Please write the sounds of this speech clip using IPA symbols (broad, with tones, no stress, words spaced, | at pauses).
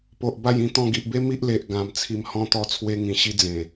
po˨ʔba˥˧jĩ˧ t̪ɔ̃˧ɡi˨ʔbe˦ mi˦ʔle˨ʔ ɡã˨˩mt͡sʰi˧m hɔ̃˧t̪ɔ˧t͡sʰwe˧ ŋĩ˧ɕi˦ d͡zẽ˨˩